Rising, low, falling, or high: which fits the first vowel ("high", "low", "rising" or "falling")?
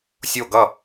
falling